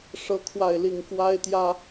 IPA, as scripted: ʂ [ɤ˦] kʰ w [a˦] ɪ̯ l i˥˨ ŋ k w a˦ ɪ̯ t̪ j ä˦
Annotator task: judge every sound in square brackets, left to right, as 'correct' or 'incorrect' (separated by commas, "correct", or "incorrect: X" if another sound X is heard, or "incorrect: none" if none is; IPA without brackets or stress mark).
correct, incorrect: a˥˨